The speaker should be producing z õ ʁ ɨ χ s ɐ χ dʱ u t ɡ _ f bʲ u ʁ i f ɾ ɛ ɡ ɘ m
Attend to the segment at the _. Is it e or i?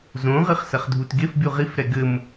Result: e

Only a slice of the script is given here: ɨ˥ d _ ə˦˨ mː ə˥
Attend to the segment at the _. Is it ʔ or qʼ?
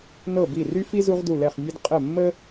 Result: qʼ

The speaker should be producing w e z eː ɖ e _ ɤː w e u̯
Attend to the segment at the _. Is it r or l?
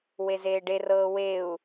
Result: r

